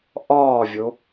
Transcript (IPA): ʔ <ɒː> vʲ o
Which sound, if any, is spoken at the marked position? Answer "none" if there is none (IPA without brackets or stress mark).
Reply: ɒː